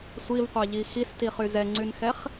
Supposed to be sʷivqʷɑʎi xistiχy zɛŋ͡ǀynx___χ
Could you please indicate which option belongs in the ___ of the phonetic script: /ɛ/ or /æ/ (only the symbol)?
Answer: ɛ